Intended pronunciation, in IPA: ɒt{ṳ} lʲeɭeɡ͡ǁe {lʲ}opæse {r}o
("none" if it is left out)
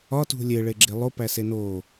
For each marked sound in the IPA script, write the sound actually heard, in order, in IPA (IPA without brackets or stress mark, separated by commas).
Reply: ṳ, lˠ, n